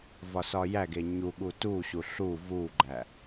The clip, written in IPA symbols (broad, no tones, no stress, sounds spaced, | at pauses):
v ɒ s ɒ j æ ɡ e ɲ u ɠ u t u ɕ u ɬ u v u ɡ͡ǃ æ